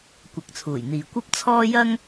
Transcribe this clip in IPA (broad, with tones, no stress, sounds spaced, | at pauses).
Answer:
kʷ ɐ˨˥ k̚ t͡sʰ uː˨˩ j n̪ iː˨ kʷ ɐ˥ p̚ t͡sʰ ɔː˥ j ɐ˥ ŋ